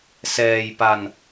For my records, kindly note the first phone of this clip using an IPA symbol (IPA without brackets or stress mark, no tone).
s